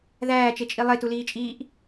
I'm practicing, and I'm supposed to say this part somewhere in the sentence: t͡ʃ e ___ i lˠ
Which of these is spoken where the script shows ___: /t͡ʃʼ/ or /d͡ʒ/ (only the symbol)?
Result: t͡ʃʼ